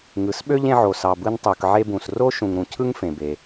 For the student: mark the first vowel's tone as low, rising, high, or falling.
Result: low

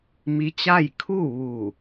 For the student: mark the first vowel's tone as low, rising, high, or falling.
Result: rising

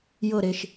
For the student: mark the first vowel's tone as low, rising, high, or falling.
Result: falling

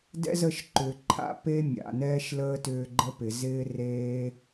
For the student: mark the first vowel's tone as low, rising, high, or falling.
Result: high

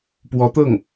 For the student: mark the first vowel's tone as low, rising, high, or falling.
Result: rising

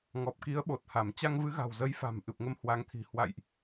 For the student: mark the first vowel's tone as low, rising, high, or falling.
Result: low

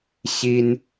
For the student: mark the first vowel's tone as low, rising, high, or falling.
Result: high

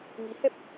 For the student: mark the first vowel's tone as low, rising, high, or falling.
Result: rising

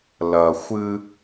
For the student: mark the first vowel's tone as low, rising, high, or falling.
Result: low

